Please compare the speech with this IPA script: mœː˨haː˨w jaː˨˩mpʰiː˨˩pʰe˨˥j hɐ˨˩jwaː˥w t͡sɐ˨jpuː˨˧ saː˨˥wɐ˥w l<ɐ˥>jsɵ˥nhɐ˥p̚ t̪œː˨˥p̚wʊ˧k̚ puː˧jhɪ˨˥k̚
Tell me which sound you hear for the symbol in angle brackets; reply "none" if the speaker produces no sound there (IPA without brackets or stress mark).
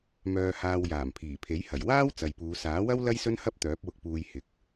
ɐ˥